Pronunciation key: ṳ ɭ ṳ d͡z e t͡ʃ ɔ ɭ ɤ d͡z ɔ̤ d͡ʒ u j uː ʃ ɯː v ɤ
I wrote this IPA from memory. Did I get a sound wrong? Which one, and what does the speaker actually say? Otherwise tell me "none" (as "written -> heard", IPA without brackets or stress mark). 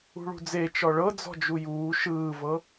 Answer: none